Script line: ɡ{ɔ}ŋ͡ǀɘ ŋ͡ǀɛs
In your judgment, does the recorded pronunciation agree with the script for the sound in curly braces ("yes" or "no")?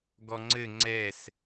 yes